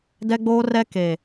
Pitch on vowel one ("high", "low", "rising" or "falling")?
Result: high